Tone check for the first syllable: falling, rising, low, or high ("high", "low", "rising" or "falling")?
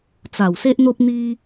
low